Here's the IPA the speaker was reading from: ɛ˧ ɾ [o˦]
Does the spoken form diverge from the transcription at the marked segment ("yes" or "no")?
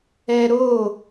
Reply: yes